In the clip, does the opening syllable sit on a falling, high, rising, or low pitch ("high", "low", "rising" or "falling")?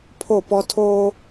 falling